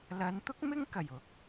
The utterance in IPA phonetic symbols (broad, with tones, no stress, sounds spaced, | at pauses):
l ɐ˨˧ n t̪ ʊ˥ k̚ m ɪ˥ ŋ k ɐ˨˩ j ʊ˨˥ k̚